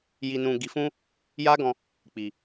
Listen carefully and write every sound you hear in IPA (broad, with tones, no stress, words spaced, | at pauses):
ji˧nũ˧ ɡi˨fũ˧ | ja˦ɡɔ̃˧ | k͡pi˨